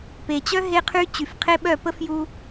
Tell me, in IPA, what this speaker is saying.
pe˨t͡ɕœ˦ ɦe˦qʰy˦ t͡ɕy˨fqʰe˦ɓœ˦˨ pə˦fju˧

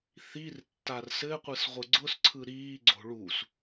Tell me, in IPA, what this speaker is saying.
θirtːar sɘqʷɯsʁʷɯ ɡ͡ǀʊsǀʰɯ ɾiːɡ͡ǀo̤ ɭus

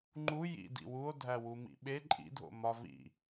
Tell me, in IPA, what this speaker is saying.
ŋ͡ǃu jḭ dḭwuo̯ dʱæwumḭɓe ǃʼḭ dʱo̰mɒ vḭ

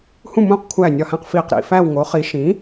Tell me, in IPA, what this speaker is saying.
hũ˥˨mũː˥˨qkʷʰæː˧˩ nʲɒ˧˩hæ̃˥˨qfiː˧˩q ɾḭ˧˩fæ˥˨w ŋo˩˥χiː˩˥ ʃĩː˩˥

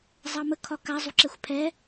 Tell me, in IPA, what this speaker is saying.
zˤɑmə kʰɒka zˤuǁɛxʷpʰɛ

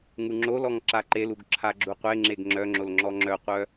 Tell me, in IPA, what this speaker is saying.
ŋuŋ͡ǁolɔŋ ǁaǃeluɡ ǁʰaɡ͡ǁuqʷeŋ͡ǁeɡ ŋ͡ǁœŋ͡ǁol ŋ͡ǁɔŋ͡ǁœqʷœ

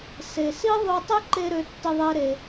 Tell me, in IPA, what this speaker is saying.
se˩ si˥ ðˤø˧tˤɪ˥ǃe˧ ɾø˧tːɪ˧ðˤɛ˧ ɾe˩

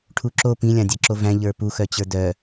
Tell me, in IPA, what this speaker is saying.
ʈʰuǁo pĩlʲãdʲɛǁo væ̃ʎə˞ puxœt͡ɕə˞ dœ

